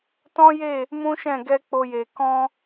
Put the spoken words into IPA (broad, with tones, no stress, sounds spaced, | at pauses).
t ɔ̃˦ j e˦˨ | m ũ˦ ʃ ɛ̃˦˨ ɡ ɛ˧ k͡p o˧ j e˨ k ɔ̃˧